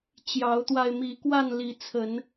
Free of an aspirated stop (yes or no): no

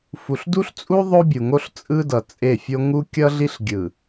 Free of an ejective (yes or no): no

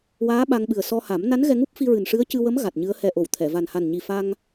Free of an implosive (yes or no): no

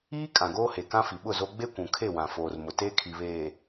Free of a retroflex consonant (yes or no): yes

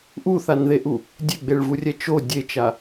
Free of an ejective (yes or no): yes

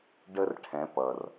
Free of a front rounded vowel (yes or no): yes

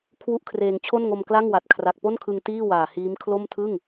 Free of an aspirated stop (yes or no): no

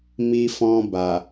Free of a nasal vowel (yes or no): no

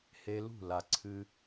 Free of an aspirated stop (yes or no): no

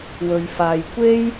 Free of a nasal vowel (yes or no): yes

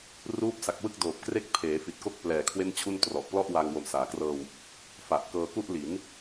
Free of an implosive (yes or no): yes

